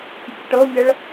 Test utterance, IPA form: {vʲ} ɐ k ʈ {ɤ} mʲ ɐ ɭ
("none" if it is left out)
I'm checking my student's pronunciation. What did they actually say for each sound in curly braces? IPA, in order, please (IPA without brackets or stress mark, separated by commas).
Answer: pʲ, ɤ